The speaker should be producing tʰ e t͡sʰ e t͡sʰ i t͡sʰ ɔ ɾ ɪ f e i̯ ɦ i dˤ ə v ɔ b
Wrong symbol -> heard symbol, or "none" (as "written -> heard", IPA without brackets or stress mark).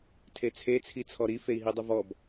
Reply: ɪ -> i